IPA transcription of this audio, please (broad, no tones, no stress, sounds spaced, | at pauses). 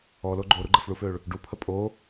ɔ l o ɡ͡ǃ o ɾ u ɡ͡ǃ ə f ɭ u f ø ɭ | ɖ u pʰ ə pʼ o